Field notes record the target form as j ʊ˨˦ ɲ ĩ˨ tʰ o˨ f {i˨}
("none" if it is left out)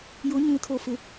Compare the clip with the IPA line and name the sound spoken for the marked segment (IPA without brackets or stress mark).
ɪ˨